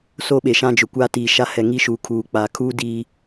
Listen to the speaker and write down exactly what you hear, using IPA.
s o˦ ɓ e˨ ʃ ã˦ d͡ʒ ʊ˨ kʷ aː˦ t iː˨ ʃ a˦ h ɛ˨ ŋ i˦ ʃ uː˨ kʰ uː˨ k͡p aː˨ kʰ uː˦ d iː˦

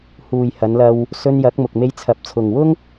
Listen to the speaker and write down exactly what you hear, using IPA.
h uː˨ j h ɐ˨˧ n l ɐ˧ w | s ɵ˧ n j ɐ˨˥ k̚ m ʊ˨ k̚ m e˧ j t͡sʰ ɐ˨ p̚ t͡sʰ ʊ˨ ŋ w ʊ˥ ŋ

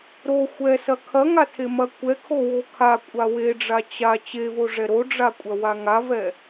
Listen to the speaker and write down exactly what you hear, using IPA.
ɾ o xʷ ɛ s ɐ kʰ ɐ ŋ a tʰ e m ɐ kʷ ɛ kʰ o w o kʰ a kʷʼ a w e ɖ͡ʐ a t͡ɕ a t͡ɕ e v o ʐ ɛ ɾ o ɖ͡ʐ a kʷʼ ɐ w a ŋ a v ɛ

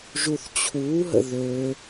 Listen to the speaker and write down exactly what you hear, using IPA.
ʒ u θ t͡ɕʰ uː ɦ ə̰ ð ø

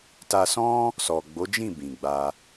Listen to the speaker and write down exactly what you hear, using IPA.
t a˧ s ɔ̃˦ | s ɔ˨ ɡ͡b o˨˦ d͡ʒ ĩ˦˨ b ĩ˨ ɡ͡b a˧

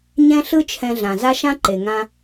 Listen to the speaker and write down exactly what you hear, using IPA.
ɲ ɛ̃˥ ɬ ɯ˥ t͡ʃʰ ɛ̃˧ ɮ ã˩ z a˥ ʃ ã˥ ǃ e˩ ŋ ã˧

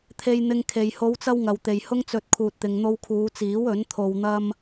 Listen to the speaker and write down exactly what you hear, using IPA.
t̪ʰ e˧ j n̪ ɪ˧ ŋ kʰ e˨ j h o˨˧ w t͡s ɐ˧ w ŋ ɐ˨ w t̪ e˨ j h ʊ˥ ŋ t͡s ɵ˧ t̚ kʰ uː˨ t̚ t̪ ɪ˨ ŋ n̪ o˧ w kʰ uː˨˧ t͡s iː˨˥ w ɵ˨˥ n t̪ʰ o˧ w n̪ ɐ˥ m

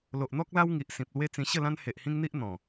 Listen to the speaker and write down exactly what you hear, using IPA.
l o˨ ʔ n̪ ɔ˦ k̚ l a˦ w ŋ i˨ ʔ s ĩ˨ p̚ l w e˦ t͡s ĩ˧ ɕ ə˥˧ l ã˦ n h e˨ ʔ h ĩ˦ ŋ n̪ i˦ ʔ n̪ ɔ̃˨˩

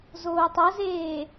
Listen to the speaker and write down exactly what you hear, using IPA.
z oː tˤ ɤ z eː

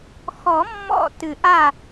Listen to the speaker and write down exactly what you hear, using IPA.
x ɔ˨˩˦ mː ɔ̰˥˩ t ɨ˨˩˦ ʔ a˥˩

